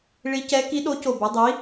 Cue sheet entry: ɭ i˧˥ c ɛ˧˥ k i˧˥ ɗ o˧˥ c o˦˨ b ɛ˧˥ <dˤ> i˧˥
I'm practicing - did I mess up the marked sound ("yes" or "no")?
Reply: no